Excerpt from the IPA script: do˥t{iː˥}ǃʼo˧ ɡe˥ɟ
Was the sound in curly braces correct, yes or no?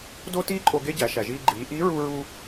yes